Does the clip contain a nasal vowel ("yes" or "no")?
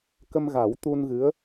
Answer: no